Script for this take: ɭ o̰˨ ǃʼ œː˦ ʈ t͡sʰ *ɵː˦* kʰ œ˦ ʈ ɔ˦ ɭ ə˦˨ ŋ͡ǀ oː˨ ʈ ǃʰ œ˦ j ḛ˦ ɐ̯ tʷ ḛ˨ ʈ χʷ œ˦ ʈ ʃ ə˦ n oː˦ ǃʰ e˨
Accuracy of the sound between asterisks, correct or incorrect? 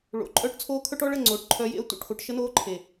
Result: incorrect